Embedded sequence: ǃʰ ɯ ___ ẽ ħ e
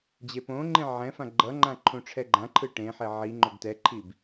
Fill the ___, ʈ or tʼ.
ʈ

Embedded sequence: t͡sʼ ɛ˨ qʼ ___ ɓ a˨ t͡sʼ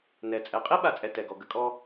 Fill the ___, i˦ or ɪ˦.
i˦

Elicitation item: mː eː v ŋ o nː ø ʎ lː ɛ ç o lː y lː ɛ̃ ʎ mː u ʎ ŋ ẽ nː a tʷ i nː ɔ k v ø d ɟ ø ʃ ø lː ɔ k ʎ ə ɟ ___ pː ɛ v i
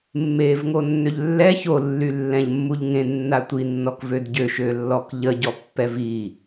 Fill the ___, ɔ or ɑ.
ɔ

